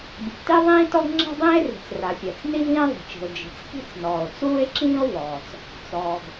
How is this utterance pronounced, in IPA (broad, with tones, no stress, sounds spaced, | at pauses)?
bʲ ɘ˩ ɡ t i˥ ðˤ ĩː˥ t ɔ˥ ɡ ŋ͡ǁ ɛ̤˥ dˤ ĩː˥ e̯ r i̤˩ t͡s r a˩ fʲ ɜ˩ t͡s n i˥ v ĩː˥ ðˤ i̤˩ t͡ʃ i̤˩ o̯ d͡ʒ i̤˩ t͡s k i̤˥ t͡s n ɔː˩ o̯ t͡s uː˥ e̯ ǁ ĩː˥ o̯ v ɔː˩ t͡s | t͡s ɔː˩ ɡ